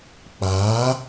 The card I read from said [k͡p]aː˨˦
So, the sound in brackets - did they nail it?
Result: yes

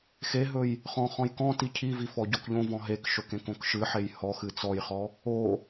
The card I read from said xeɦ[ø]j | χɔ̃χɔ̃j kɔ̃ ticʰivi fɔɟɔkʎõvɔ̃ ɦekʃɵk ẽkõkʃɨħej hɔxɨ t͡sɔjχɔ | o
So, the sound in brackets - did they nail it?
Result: no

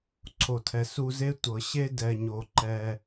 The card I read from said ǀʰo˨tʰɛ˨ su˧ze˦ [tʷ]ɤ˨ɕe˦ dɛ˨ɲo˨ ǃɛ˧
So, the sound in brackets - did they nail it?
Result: yes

